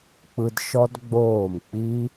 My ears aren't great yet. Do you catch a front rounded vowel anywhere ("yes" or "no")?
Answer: no